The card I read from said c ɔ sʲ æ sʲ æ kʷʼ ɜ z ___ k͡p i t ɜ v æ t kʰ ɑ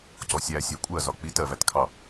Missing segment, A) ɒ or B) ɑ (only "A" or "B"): A